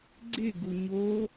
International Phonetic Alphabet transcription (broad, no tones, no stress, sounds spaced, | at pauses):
ɡ͡ǀ ɪ ɡ u ɲ o